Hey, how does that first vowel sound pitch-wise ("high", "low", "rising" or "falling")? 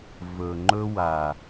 low